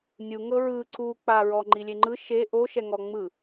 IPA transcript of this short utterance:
nʲ u ŋ ɤ ɹ ɯ ǀ u k͡p a ɹ ɔ ŋ͡ǃ i lʲ e ŋ͡ǃ ɯ ʃ e ʔ o ʃ ɛ ŋ ɔ ŋ͡m ɯ

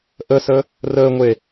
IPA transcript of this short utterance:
ʔ ə s ə | r əː ŋʷ e

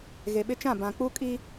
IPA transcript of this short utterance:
ɣ e˨ ɓ ɪ˦ t͡ʃ ã˦˨ b ã˨ k͡p u˦ kʼ i˦

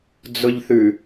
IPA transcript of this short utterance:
d͡z ʊ ʎ θ ʉ

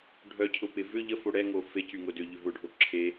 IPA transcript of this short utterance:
ɖʱ œ cʰ ʊ p ɪ v ʏ ʎ ə f o ɽ ɛ ŋ o f e c y ŋ ʊ d ʏ ʎ ʏ v ʊ ɖʱ o ǁʰ e

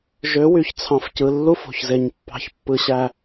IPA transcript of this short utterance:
ʒ ø˨˦ w y˨ ç t͡sʰ ɑ̃˨ f c ɯ˨ lː u˦ f o̤˨ ç z e˨ ɲ pː ɑ̤˨ ç pː ɯ˨ ɕ æ˨

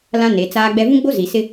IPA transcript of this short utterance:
l ã˦ n e˨˦ t͡s aː˦ ɡ͡b ɛ˦ v ũ˦ ɡ͡b o˦ z i˨ s ɪ˦

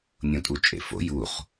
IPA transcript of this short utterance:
nʲ õ tʼ u t͡ʃʼ ḛ f o̰ j u χ

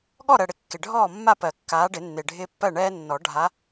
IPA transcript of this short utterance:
ɠ ɔ˥˨ ɾ ɜ˨ ɽ ɪ˨˦ kː ɪ˨ ɖʱ ɔː˥˨ mː a˥˨ p ɜ˨˩˦ kː aː˨˦ ɖ ɪ˨˩˦ nː ɪː˨ ɖʱ ɪː˦ pː ɜ˥˨ ɳ ɛː˦ nː ɔ˨˩˦ ɖʱ a˨˦

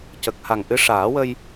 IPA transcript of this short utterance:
c ə˨˩ k̚ h a˨˩ ŋ ʔ ɨ˧˥ ʂ aː˨˩˦ w ə˧ j

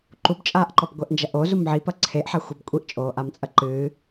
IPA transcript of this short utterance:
ǃ u b t͡ʃʼ aː ʔ ǃ ɔ b ɡʷ ɛ ʔ n d͡ʒ ɐ ʔ o z u m ʕ i p ɐ ǀʰ e ʔ ħ a xʷ e b kʷʼ i ʔ t͡ʃʼ oː ʔ a m t͡sʼ ɐ ǃ ɨː

